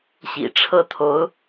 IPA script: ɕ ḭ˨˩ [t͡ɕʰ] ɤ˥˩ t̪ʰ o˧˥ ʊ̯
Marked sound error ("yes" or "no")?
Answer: yes